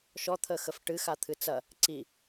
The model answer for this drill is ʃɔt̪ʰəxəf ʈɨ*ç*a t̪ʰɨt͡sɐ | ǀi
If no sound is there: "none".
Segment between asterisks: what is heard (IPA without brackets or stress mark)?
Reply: x